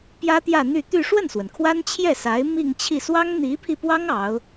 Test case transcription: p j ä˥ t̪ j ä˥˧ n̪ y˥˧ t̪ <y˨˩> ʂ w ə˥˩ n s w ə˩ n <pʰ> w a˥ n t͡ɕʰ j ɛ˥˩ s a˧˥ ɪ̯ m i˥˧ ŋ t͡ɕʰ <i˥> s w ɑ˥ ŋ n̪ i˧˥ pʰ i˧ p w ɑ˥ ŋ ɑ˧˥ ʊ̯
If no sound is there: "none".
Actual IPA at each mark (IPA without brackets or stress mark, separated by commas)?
y˥˧, kʰ, i˥˩